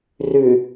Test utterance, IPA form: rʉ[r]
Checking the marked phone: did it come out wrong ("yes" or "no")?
yes